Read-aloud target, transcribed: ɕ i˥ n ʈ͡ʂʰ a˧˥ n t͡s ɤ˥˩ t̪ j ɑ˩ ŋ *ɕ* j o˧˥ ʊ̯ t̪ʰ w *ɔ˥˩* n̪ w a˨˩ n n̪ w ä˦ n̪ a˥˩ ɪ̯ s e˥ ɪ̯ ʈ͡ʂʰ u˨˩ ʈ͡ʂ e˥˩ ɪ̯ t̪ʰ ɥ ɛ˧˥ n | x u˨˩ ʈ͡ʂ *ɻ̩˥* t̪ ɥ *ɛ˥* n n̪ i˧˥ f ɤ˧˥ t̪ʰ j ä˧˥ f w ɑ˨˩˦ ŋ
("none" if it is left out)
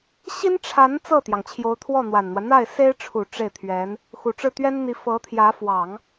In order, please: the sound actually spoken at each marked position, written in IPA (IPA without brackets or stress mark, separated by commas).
t͡ɕʰ, ɔ˥˩, ɻ̩˥˩, ɛ˥